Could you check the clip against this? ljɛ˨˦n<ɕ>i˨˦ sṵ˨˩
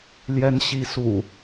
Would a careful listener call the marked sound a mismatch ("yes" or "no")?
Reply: no